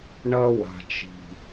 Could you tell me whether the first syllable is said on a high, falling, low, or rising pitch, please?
high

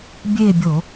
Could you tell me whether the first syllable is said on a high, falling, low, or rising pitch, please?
falling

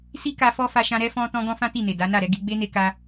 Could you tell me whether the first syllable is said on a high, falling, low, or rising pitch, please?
high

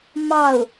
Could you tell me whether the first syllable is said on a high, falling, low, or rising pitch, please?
falling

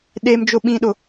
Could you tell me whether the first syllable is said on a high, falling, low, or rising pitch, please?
high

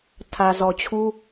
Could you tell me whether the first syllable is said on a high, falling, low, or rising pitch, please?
low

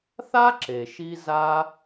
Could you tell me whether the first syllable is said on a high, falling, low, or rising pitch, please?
high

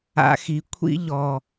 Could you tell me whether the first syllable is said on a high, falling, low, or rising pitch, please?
high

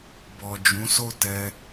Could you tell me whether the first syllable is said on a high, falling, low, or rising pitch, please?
low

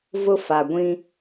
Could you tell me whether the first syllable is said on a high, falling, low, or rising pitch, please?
high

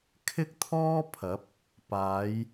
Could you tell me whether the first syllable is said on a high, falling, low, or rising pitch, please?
high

